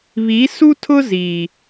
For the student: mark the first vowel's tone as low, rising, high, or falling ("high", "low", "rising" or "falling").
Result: rising